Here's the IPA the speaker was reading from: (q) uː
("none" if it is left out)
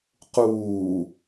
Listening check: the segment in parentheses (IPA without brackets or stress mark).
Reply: q